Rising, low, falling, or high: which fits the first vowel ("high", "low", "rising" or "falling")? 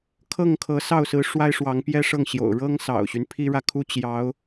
falling